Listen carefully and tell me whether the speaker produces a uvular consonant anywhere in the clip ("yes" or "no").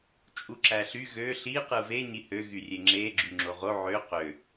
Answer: yes